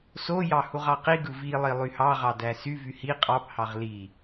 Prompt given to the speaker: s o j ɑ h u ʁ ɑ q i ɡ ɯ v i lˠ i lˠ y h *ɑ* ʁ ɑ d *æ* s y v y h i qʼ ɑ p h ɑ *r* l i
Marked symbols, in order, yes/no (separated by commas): yes, yes, no